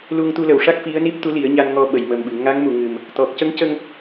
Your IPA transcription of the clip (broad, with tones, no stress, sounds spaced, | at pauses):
l u˧ ŋ t̪ u˧ l ə˨˩˨ w ʂ a˦˥ k̚ f i˧˥ ə̯ n i˦˥ p̚ t̪ u˧˥ l i˨˩˦ ə̯ ɲ a˧ n ŋ ɔ˧ ɓ ə˨˩˨ j m ə˨˩ m ɓ ɨ˨˩˨ ŋ a˧˥ ŋ m u˨˩˨ ŋ ɨ˨˩ m | t̪ ɔ˨˩ k̚ c ə˧˥ ŋ c ə˧ ŋ